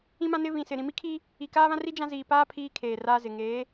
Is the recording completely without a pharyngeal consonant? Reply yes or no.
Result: yes